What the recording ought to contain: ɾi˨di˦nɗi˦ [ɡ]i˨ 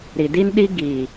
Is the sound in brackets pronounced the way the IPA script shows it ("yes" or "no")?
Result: yes